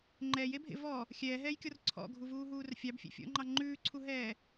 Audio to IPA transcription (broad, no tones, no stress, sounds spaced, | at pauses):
ŋ͡ǃ ɛː j e bʱ ḛ v ɔ | xʲ ɛː ɦ ɛː j kʲ ɔ r ǀʰ ɔ̰ ɡʱ u v uː ɦ uː r fʲ ɑ b fʲ ḛ fʲ ɔ̰ ŋ͡ǃ ɑ ŋ͡ǃ ʉː ǀʰ u ɦ ɛː